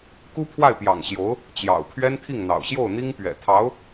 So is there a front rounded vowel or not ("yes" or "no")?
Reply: no